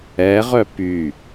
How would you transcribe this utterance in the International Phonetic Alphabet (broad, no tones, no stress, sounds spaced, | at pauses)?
ɛ ʁ œ p y